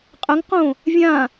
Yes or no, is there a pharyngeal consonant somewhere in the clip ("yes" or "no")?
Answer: no